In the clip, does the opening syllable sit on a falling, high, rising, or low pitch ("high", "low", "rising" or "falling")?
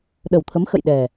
low